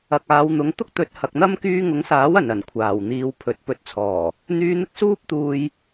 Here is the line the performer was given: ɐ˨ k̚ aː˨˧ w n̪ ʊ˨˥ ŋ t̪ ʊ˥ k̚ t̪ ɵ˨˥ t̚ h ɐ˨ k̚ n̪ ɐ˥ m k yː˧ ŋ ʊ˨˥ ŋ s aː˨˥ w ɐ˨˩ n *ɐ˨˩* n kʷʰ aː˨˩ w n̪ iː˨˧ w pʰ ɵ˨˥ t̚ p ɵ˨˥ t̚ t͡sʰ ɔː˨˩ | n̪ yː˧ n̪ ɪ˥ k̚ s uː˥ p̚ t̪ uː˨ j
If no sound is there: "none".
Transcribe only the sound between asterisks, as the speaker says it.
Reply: ɐ˨˩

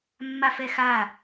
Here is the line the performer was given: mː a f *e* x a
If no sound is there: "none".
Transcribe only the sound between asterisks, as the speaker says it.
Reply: ɛ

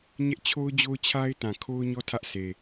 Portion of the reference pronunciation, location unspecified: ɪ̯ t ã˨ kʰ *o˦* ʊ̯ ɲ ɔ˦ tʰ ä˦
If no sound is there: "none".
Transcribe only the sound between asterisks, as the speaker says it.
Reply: o˦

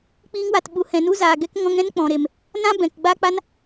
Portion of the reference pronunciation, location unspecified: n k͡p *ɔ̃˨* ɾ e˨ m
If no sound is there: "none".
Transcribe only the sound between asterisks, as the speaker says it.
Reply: ɔ̃˨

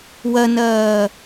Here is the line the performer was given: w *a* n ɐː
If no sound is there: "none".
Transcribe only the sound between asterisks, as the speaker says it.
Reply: ɐ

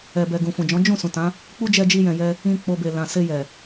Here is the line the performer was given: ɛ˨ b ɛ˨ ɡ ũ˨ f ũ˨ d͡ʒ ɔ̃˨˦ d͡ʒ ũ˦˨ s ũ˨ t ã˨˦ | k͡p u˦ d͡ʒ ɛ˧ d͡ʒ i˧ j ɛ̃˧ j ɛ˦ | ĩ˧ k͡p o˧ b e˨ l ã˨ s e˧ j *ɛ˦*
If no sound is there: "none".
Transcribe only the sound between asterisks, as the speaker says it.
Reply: ɛ˨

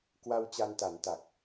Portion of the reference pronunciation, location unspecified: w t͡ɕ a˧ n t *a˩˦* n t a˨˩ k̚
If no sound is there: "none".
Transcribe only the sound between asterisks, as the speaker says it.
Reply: a˩˦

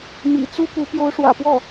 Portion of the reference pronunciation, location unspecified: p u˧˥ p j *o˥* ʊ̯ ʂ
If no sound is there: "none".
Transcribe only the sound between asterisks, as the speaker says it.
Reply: o˧˥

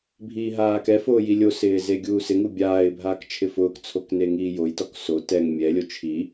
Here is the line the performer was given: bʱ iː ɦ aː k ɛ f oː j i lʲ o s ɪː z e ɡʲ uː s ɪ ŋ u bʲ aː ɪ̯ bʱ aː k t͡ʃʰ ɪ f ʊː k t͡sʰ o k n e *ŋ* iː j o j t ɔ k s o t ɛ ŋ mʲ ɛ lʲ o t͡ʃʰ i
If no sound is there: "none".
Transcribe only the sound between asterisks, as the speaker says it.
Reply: ŋ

